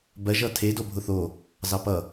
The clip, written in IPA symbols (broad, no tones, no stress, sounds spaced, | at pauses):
b ɜ ʒ ʌ tʰ e d o bʱ ʊ θ o | z ɑ p ʌ